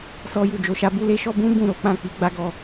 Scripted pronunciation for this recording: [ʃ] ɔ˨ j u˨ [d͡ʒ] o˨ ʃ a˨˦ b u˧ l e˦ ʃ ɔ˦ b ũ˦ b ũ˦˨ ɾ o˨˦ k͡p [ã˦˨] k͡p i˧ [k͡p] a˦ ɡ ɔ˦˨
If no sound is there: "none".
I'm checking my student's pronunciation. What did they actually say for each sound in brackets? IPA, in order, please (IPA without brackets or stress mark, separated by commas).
s, d͡ʒ, ã˦˨, ɡ͡b